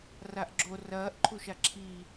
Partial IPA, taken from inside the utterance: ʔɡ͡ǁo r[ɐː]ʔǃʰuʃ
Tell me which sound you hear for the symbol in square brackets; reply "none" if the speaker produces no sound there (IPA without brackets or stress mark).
ɐː